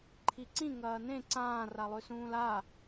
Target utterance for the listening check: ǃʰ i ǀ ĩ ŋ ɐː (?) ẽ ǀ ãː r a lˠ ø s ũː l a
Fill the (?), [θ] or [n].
n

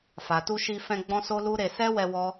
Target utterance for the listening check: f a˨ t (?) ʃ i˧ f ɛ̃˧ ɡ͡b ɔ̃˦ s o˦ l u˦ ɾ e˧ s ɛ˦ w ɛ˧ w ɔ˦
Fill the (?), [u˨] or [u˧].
u˧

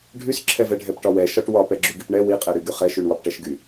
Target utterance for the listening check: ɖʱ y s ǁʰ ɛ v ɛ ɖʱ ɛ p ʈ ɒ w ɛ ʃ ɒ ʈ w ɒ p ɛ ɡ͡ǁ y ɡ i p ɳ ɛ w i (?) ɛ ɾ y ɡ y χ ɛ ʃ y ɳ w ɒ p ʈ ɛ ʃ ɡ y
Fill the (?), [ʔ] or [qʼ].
qʼ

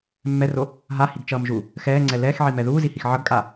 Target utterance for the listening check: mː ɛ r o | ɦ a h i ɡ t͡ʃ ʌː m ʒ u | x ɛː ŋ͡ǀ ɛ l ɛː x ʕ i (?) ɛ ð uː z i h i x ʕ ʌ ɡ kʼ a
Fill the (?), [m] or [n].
m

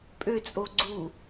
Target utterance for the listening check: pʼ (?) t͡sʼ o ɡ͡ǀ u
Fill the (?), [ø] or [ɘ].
ø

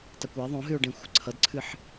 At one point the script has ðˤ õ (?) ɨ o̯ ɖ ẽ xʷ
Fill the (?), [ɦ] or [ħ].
ɦ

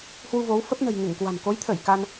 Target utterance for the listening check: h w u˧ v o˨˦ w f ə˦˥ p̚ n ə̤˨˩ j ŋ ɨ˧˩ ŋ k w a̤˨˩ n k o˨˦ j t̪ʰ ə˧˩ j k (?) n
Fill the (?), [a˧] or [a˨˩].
a˧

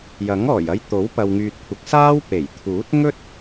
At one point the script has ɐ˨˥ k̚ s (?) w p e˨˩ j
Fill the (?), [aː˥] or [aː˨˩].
aː˥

